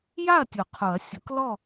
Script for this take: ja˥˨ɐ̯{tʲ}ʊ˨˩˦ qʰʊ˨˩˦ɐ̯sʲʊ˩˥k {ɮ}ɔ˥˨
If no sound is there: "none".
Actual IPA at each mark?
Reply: tʲ, l

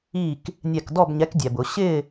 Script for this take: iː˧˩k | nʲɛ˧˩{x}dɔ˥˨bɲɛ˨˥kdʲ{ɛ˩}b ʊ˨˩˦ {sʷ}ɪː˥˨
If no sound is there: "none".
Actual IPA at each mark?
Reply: k, ɛ˩, ɕ

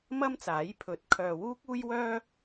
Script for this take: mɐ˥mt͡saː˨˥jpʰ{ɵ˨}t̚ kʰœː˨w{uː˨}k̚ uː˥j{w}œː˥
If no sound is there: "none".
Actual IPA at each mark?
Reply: ɵ˨˥, uː˥, w

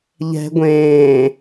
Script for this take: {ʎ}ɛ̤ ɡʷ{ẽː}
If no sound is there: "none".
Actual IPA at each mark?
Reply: ʎ, ẽː

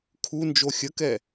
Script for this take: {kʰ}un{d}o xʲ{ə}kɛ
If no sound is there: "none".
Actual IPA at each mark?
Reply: kʰ, d͡ʒ, ə

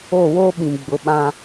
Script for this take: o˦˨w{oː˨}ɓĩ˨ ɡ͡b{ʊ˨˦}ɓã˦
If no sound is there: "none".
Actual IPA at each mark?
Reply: oː˦, ʊ˨˦

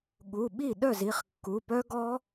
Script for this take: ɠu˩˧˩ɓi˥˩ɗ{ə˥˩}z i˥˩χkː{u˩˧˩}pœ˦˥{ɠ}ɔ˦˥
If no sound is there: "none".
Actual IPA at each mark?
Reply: œ˥˩, u˩˧˩, ɡ

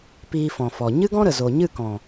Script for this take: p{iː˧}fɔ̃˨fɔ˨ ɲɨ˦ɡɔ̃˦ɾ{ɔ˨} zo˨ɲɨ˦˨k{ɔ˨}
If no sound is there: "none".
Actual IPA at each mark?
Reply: iː˧, ə˨, ɔ̃˨

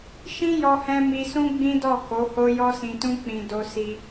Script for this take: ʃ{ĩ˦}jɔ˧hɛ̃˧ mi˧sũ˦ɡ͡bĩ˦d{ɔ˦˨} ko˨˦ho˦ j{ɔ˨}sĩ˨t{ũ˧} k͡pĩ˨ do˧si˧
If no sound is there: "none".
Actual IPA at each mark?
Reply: ĩ˦, ɔ˦˨, ɔ˧, ũ˧

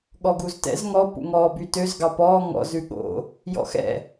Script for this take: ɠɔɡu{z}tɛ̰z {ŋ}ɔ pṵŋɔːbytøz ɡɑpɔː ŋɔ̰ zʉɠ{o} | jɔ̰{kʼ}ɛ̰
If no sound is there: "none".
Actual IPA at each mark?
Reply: z, ŋ, o̰, x

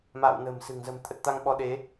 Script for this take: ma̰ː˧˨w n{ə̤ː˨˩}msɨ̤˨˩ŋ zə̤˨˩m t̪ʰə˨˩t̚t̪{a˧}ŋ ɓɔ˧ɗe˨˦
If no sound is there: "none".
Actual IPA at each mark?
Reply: ə̤ː˨˩, a˧

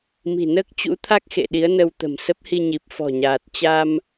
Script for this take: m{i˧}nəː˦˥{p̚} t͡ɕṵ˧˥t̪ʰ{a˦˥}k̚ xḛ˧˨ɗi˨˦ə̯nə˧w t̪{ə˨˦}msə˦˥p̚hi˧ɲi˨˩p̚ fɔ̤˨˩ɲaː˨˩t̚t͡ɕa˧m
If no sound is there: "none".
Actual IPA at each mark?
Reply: i̤˨˩, k̚, a˦˥, ə̤˨˩

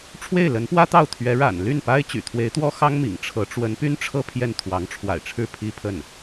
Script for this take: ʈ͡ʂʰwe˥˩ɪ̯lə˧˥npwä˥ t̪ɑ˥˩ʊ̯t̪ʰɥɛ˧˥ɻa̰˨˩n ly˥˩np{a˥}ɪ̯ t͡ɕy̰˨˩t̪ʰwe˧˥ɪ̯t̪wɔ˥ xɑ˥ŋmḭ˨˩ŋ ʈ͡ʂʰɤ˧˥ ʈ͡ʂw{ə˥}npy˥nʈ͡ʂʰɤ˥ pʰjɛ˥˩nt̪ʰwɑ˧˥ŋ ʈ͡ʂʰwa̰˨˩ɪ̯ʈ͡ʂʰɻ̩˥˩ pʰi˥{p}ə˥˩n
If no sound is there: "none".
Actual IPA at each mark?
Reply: a˥, ə˧˥, pʰ

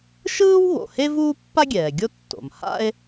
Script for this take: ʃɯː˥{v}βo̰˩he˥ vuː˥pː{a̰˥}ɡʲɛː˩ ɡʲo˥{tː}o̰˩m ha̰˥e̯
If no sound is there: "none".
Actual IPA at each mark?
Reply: w, a˥, tː

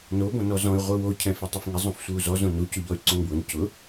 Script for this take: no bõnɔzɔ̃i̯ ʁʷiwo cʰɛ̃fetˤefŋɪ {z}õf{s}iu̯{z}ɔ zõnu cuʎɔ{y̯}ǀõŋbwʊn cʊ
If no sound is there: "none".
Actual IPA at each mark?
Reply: zˤ, sʷ, z, y̯

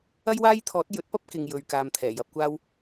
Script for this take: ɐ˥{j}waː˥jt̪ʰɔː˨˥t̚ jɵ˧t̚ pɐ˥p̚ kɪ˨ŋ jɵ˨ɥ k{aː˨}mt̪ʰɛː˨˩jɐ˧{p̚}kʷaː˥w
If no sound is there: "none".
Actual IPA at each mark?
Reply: j, aː˨, p̚

